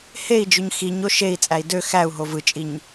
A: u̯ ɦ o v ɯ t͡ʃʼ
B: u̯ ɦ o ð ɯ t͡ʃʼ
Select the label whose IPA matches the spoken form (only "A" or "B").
A